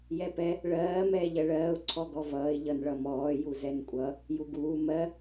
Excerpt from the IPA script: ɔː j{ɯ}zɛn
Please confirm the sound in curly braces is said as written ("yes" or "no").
no